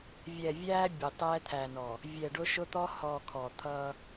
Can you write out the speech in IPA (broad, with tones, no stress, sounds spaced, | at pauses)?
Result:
vʲ ɛ˨ vʲ æː˦ bʲ ʊ˨ tˤ ɛː˦ t̪ʰ æ˨ n ɔ˨ | vʲ ɛ˨ ɖ ʊ˦ ʃ ʊ˦ t̪ ɔ˦ h ɔ˨ kʰ ɔ˨ t̪ʰ ʌː˦